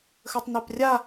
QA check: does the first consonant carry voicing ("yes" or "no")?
no